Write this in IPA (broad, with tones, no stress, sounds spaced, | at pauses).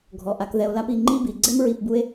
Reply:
ɡʱ ɔ˩ ʔ a˨ k ð ɛ˨ o̯ l a˦ p i˨ ŋ͡ǃ i˦ b i˩ ɡ͡ǀ ɛ˥ m ɹ i˨ p b u˦ e̯